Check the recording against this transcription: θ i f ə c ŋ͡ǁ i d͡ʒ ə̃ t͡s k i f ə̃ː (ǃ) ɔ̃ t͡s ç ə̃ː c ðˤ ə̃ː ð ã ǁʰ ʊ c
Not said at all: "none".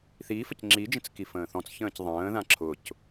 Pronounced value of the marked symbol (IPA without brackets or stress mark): θ